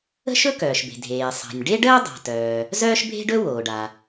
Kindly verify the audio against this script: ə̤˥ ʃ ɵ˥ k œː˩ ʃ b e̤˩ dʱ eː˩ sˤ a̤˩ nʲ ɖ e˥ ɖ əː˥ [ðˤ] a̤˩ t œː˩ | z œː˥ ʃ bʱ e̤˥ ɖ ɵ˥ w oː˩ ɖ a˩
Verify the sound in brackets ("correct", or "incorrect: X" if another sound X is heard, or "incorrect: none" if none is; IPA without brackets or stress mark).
incorrect: dˤ